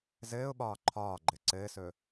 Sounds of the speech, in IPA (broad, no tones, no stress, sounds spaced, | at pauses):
z ɘː ʊ̯ ɓ ɒː ǃʰ ɒː ɡ͡ǃ ɘ ǀ ɘː s ɵː